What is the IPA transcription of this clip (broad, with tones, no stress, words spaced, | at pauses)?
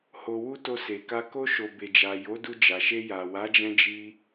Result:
ho˧wu˦ to˧se˨ka˧ ko˧ʃo˨ be˨d͡ʒa˨ jo˨˦ du˧d͡ʒa˨ʃe˧ja˨ wa˨˦d͡ʒɛ̃˧d͡ʒi˧